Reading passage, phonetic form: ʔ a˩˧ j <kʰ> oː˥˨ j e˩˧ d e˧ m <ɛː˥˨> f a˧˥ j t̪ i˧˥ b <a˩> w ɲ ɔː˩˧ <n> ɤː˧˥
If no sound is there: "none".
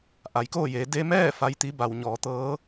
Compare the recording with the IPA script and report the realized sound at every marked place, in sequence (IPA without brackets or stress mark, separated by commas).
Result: k, ɛː˥˨, a˩, t̪